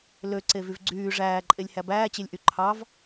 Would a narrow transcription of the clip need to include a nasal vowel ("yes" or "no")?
no